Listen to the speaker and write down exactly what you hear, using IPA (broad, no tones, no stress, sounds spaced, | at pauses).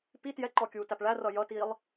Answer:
p i t j ɛ ǃ ɔ kʲ uː t æ p ɭ æ r ʌ j ʌ t iː lˠ